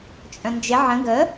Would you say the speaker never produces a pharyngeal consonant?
no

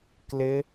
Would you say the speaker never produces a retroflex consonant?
yes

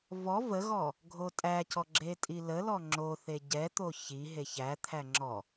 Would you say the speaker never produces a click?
no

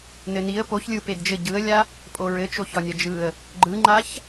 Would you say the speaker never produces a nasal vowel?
yes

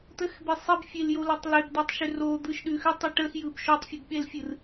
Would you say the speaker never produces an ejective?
yes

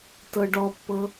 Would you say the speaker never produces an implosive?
yes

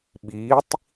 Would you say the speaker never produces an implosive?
no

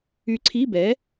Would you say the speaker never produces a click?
no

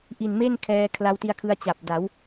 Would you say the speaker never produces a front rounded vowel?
yes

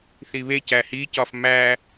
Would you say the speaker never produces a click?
yes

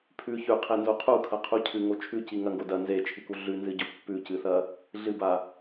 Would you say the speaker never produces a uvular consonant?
no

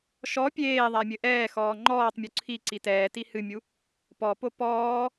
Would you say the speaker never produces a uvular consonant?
yes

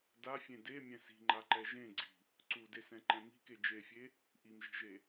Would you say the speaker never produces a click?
no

